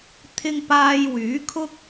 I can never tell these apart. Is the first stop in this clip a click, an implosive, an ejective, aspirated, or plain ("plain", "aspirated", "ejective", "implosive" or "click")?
aspirated